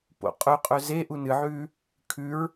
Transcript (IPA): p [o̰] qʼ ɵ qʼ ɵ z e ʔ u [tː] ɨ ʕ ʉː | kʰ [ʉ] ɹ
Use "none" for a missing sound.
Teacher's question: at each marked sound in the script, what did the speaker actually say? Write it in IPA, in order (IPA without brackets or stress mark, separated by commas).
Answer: o̰, n, ʉ